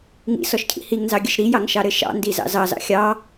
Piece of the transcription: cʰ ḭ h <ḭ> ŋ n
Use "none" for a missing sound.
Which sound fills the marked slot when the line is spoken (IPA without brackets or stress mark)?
i